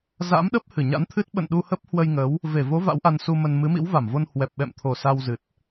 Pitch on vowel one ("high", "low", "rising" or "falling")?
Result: rising